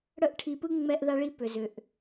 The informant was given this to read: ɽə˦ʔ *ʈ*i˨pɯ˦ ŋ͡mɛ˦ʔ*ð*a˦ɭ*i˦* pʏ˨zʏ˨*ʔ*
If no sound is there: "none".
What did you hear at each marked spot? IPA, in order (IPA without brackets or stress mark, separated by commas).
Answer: ʈʰ, ð, i˦, ʔ